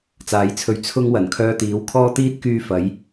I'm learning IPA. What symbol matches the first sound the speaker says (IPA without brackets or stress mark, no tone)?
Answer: t͡s